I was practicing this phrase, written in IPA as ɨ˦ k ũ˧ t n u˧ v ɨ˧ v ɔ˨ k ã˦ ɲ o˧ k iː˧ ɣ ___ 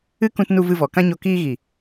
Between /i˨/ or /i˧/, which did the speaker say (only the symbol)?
i˨